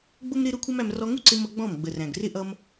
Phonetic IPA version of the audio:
ɡ͡b ʊ˦ m ɾ ɪ˦ ɾ ʊ˦ kʷʰ ʌ˦ m æ˧ m r ɔ˧ ŋ u˦ ǀ ɪ˧ m ʌ˦ ɡ͡b ɔ̃˦˨ m ɡ͡b ə˨ r æ̃˨ ɡ r ɪ˦ ʔ ʌ˦ m

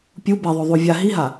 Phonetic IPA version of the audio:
pʲ u b e ðˤ o ðˤ u vʲ a ɦ i ɦ a

